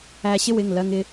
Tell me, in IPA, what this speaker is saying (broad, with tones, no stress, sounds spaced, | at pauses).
æ˧ ɕ ɪ˥ w ɪ˩˧˩ ŋ l ɜ˧ ŋ ɪ˧